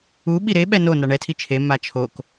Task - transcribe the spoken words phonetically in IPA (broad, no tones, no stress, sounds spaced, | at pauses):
u ɓ i ɾ e ɓ ɛ n o n a ɳ ɛ tʰ i t͡ʃʰ e m a t͡ʃʰ o k